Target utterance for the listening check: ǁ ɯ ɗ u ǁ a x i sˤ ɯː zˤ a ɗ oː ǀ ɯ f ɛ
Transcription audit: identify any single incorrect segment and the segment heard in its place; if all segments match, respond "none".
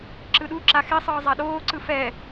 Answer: none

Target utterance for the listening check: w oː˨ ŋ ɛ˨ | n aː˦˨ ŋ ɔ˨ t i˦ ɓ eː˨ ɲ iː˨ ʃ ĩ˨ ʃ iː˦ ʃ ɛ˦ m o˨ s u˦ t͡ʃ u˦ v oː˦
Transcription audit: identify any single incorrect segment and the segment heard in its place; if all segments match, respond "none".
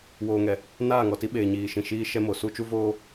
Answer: none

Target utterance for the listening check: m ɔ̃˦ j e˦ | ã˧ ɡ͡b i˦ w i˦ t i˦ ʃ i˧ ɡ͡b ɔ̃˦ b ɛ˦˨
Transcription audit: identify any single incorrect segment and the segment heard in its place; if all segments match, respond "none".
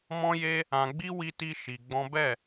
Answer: none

